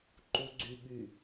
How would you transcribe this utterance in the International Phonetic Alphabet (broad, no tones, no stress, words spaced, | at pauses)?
ǃuɡ͡ǀyɠy